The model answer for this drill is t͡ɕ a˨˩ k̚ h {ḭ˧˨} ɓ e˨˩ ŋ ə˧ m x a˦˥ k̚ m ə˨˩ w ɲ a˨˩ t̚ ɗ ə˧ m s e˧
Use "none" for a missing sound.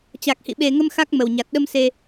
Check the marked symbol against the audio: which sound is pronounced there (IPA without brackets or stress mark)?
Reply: ḭ˧˨